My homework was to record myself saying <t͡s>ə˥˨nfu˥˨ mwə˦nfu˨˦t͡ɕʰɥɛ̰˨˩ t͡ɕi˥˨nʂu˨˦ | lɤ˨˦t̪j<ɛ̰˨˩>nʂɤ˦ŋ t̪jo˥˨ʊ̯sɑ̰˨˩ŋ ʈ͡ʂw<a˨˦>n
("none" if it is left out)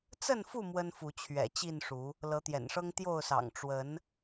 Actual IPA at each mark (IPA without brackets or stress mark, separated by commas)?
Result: t͡s, ɛ̰˨˩, ə˨˦